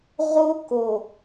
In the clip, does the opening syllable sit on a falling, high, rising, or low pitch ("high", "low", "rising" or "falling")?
high